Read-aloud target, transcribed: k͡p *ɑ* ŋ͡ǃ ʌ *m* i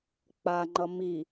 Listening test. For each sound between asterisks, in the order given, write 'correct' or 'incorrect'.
incorrect, correct

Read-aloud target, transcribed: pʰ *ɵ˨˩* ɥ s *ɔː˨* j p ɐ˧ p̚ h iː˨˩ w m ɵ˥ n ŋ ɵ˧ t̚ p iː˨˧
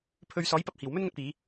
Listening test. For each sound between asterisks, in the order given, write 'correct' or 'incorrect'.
incorrect, incorrect

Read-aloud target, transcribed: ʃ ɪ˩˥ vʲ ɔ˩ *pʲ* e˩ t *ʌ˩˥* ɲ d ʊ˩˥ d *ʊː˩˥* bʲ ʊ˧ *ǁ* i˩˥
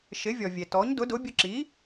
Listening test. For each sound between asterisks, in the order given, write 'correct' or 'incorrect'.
incorrect, incorrect, incorrect, correct

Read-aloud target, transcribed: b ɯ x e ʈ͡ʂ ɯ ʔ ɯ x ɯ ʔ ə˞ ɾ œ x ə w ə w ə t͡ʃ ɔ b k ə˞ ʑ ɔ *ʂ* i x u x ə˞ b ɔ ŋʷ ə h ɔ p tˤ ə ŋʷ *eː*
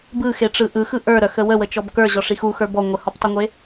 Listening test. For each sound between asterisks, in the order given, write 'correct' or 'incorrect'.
correct, incorrect

